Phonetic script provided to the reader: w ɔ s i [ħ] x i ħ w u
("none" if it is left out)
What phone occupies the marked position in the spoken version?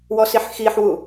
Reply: ħ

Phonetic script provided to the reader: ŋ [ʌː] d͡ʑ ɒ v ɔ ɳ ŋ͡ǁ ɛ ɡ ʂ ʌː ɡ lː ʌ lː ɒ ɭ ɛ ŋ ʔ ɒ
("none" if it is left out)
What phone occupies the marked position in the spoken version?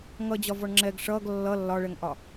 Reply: ʌ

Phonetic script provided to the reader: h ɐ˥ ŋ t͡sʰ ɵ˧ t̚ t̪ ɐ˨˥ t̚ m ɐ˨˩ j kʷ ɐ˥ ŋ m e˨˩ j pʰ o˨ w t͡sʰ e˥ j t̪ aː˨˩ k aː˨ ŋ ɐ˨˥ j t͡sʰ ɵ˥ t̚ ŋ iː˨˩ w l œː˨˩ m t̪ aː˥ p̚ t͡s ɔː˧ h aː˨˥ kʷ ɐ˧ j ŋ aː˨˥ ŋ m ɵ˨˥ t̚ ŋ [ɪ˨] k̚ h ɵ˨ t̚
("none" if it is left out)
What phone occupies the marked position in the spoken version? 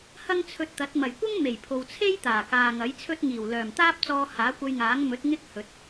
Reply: ɪ˥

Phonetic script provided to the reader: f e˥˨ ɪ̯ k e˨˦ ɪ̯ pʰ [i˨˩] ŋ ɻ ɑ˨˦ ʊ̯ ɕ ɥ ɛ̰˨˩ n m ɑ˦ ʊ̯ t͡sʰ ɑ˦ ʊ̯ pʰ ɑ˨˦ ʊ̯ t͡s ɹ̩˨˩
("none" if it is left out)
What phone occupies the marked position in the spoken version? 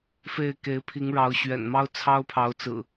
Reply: i˨˦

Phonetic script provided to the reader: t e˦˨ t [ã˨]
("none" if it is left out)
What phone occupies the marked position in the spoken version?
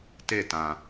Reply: ã˨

